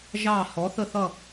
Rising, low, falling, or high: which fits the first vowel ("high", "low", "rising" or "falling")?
falling